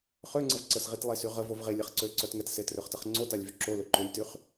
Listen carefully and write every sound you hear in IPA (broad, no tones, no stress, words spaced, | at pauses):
χøŋ͡ǀəv ǀəsʁitlˠesy ʁəvov ʁelʲɛχ ǀøǀœt ŋɛtsetrøχtəχ ŋ͡ǀotalʲvy ǁolø ǃølʲtyχ